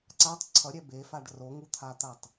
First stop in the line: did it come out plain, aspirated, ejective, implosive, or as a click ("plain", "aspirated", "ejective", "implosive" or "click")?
click